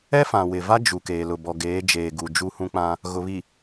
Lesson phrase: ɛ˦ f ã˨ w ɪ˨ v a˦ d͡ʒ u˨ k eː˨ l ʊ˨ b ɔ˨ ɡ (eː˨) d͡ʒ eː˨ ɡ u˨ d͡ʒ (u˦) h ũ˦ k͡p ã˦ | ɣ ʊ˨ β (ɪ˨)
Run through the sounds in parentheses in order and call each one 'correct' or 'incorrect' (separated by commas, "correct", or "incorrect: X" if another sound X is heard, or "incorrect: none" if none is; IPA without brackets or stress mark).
incorrect: eː˨˦, correct, incorrect: i˨